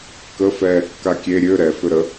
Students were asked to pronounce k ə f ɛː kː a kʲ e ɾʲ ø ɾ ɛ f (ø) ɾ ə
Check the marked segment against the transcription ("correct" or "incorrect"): correct